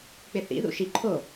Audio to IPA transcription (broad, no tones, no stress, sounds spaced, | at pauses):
k͡p ɪ θ ḭ ð ṵ ʃ i ǃʰ o